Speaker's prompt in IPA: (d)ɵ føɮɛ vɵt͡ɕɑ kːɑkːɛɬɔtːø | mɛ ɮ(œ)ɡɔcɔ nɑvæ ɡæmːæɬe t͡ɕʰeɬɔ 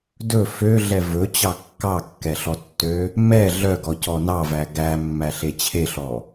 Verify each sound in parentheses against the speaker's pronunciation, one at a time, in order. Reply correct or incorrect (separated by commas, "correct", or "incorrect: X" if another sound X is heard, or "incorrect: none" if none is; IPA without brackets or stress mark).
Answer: correct, correct